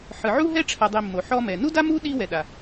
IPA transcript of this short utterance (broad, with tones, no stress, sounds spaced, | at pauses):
ħ ɯ˩ ʕ u˥ ɦ ɛ˥ ʈ͡ʂʰ a˨ dˤ i˨ mː o˩ ħ ɔ˦ m ɛ˩ n u˥ d a˥ m u˥ ɗ i˦ w ɛ˩ ɗ a˩